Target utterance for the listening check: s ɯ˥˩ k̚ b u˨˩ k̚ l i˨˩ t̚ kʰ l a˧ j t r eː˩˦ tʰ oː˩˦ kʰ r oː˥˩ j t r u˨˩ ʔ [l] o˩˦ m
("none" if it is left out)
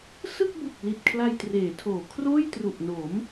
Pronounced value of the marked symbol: n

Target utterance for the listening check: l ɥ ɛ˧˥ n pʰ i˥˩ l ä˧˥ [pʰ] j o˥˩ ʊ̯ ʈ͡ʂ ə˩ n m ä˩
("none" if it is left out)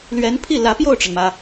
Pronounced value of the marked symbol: p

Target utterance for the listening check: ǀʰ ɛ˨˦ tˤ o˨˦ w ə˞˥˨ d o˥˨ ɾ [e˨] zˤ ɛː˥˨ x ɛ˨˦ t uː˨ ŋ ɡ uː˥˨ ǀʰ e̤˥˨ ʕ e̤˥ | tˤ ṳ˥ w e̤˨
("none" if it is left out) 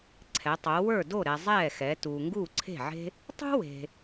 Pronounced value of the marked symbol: ɛ˨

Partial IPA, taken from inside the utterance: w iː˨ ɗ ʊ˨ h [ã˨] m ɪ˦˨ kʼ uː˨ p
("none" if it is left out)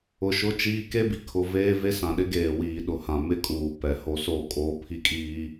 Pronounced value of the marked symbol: ã˨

